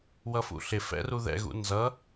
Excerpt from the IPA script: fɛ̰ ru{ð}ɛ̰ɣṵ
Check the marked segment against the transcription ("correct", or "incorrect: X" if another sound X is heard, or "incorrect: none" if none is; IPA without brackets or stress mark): correct